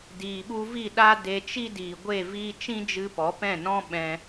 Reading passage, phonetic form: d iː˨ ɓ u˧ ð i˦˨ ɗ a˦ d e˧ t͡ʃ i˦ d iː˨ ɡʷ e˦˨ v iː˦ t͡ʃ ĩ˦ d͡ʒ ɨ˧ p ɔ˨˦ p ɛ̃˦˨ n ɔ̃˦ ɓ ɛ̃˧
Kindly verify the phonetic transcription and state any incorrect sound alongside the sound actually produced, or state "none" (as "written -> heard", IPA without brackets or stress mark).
ð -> v